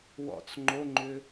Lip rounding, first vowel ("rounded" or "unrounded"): rounded